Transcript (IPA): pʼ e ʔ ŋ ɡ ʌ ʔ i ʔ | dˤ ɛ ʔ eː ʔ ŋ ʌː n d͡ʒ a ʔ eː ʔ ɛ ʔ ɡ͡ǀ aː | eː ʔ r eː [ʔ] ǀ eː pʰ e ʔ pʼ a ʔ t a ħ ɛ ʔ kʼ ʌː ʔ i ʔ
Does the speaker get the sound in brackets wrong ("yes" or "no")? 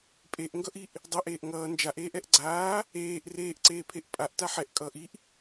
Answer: no